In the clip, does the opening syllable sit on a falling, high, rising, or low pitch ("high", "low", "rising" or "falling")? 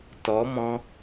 rising